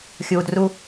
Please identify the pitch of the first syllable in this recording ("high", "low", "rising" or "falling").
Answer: low